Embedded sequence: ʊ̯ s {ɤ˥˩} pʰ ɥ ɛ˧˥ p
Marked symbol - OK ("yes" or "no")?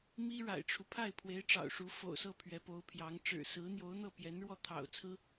yes